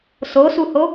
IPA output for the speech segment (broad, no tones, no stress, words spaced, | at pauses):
sosuho